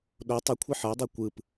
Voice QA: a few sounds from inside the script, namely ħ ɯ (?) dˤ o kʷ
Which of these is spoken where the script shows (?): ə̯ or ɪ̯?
ə̯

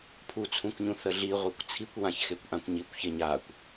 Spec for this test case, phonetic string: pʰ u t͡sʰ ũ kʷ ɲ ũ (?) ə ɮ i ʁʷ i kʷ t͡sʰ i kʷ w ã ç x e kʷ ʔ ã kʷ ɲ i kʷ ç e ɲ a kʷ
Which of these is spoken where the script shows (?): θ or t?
θ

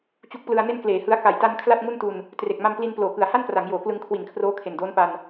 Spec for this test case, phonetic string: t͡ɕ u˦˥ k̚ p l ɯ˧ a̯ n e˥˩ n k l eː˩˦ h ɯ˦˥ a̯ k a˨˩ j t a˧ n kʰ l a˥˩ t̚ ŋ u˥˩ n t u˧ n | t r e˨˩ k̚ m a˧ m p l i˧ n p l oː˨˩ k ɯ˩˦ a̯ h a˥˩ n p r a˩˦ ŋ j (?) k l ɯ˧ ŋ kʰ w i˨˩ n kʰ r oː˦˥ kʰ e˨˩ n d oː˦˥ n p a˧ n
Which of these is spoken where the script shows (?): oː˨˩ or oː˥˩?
oː˨˩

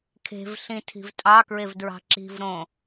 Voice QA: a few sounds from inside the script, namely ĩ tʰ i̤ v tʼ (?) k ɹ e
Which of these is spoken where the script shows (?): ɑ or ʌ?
ɑ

